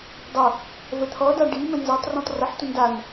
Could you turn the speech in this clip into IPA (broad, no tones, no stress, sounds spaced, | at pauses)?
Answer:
dˤ ʌ | v ə t̪ʰ ɔ d a ɖ i m ə̃ n z ʌ tˤ r ɔ̃ tˤ r ə ħ tʷ ə n d a n